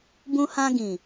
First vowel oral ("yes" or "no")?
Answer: no